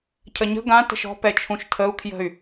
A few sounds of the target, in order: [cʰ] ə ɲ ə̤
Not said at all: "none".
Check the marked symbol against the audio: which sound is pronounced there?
cʰ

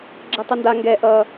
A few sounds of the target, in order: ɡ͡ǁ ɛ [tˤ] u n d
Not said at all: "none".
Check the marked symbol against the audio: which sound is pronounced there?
tˤ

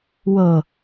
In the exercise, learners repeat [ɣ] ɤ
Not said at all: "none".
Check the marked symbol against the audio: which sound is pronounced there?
w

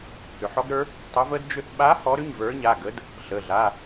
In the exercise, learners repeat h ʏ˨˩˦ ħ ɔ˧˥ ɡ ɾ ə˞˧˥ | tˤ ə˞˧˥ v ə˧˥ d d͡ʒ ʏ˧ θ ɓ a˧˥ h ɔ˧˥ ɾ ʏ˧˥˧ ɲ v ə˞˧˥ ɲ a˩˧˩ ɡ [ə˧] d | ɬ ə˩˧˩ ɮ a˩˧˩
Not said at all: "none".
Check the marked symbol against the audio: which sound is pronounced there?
ə˧˥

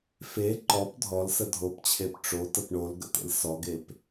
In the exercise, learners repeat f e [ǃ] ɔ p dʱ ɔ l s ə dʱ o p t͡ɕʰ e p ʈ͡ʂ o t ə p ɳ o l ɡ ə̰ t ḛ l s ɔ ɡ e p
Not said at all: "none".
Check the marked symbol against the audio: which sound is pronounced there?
ǃ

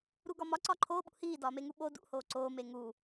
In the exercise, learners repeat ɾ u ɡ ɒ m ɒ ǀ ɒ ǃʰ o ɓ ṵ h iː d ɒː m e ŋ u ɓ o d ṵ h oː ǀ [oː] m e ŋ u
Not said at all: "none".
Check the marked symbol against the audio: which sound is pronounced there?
oː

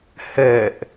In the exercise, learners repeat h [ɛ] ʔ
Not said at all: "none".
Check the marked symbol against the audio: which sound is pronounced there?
ɛ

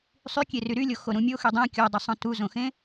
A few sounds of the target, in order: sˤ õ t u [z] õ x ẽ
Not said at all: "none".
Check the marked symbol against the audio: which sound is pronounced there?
z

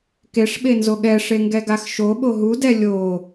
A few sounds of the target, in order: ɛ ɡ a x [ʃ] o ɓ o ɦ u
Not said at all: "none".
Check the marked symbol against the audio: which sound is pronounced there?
ʃ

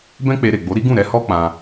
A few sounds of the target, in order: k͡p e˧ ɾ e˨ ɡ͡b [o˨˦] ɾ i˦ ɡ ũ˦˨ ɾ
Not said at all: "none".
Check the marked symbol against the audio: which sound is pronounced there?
o˨˦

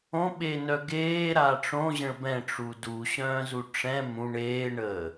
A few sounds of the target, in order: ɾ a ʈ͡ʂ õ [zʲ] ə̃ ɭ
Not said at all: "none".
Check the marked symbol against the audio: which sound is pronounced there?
ʑ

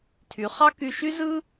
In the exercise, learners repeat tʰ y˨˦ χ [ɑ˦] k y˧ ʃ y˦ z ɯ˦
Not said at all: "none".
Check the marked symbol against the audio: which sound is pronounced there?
ɑ˦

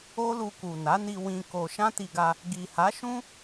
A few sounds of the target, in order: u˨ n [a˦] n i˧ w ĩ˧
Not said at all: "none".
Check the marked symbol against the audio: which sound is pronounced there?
a˨˦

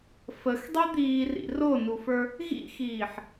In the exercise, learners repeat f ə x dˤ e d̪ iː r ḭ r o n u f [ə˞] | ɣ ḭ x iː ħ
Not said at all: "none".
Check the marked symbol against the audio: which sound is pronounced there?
ə˞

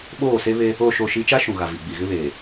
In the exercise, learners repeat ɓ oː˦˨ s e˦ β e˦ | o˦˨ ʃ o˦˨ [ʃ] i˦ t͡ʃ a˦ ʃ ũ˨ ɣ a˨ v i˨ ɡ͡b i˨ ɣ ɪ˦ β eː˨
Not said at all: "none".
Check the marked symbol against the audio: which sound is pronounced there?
ʃ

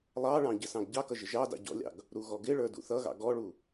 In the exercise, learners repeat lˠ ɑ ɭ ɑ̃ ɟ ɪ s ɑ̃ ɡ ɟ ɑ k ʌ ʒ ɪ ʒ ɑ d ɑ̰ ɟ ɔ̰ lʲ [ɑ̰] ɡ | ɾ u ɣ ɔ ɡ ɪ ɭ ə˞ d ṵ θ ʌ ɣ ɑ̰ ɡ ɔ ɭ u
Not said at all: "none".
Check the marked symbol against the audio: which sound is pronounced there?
ɑ̰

